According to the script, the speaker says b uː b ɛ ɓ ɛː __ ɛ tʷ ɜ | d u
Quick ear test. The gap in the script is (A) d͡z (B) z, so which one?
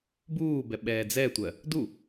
A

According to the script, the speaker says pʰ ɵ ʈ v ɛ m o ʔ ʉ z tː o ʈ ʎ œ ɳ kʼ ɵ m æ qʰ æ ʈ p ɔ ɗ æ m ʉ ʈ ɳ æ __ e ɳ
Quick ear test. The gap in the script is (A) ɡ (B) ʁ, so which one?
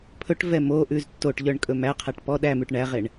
B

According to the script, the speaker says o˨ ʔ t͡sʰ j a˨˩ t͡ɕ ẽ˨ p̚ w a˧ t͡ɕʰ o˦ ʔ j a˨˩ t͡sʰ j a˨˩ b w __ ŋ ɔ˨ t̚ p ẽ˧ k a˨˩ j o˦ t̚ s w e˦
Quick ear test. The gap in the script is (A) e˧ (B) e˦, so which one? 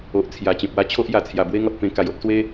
B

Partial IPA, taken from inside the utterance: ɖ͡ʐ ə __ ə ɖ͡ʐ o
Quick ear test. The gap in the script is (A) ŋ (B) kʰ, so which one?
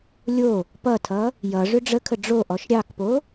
B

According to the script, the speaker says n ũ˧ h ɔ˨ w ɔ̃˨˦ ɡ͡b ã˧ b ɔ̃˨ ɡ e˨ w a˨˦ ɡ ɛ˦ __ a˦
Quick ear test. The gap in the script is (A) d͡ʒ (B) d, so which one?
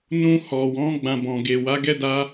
B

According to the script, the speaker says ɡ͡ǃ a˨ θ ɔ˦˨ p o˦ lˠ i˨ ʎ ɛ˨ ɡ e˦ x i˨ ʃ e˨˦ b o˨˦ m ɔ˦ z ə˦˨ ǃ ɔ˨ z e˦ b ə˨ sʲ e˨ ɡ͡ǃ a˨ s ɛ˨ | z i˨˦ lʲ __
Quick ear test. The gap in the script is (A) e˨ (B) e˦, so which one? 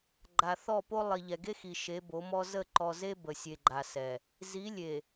A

